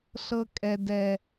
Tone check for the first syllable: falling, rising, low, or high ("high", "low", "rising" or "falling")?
high